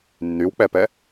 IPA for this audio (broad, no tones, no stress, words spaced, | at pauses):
nːywk͡pɛpɛ